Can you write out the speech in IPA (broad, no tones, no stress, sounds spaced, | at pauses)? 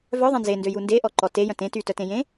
v œ ðˤ ẽ n z e n d ø j u n d e ʔ ɔ ǃ ɔ t e j œ̃ t ẽ t y t œ t ẽ j ẽ